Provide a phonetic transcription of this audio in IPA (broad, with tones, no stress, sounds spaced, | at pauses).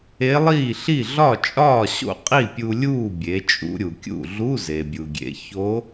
e˧˥ lˠ iː˥˩ ɬ i˥˩ ɮ ɒ˥˩ t͡ʃʼ ɒː˥˩ ɕ o̰˥˩ qʼ i˥˩ pʲ u˧ lʲ uː˥˩ bʲ e˩˧ t͡ʃʼ ṵ˧ ɾʲ u˩ kʲ ṵ˥˩ ɮ u˧˥˧ z e˩ bʲ u˩ ɡʲ ḛ˩˧ ç o˧˥